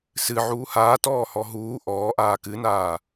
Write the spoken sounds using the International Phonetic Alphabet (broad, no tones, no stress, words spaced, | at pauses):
sɨʕuː haːtɔːhɔ ɦuː ʔɔːʔaː kɨnaː